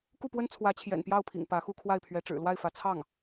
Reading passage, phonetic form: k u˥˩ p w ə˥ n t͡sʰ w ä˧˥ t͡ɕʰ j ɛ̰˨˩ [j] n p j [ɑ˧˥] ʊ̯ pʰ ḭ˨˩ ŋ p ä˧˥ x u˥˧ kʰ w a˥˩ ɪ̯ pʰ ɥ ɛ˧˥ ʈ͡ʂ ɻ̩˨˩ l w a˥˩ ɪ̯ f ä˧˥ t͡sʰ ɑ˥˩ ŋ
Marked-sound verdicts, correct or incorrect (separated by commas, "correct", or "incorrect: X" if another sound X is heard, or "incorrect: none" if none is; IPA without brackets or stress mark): incorrect: none, incorrect: ɑ˥˩